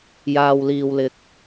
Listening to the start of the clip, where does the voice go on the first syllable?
low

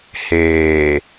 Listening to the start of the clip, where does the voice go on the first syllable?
low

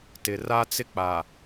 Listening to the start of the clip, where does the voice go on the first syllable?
low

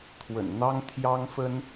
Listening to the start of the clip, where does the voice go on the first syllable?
low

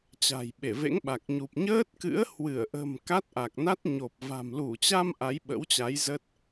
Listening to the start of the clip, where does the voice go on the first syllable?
low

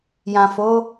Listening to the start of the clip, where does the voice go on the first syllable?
low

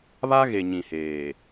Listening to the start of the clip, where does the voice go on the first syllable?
high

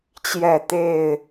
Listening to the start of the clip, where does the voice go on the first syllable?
falling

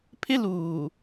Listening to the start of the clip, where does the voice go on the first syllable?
high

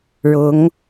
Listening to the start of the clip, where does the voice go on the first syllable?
rising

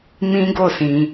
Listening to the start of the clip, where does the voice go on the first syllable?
high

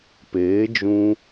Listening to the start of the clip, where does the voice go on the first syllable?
rising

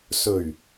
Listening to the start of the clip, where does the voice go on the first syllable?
low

